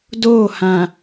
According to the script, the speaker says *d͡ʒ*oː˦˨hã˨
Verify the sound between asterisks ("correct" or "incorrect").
incorrect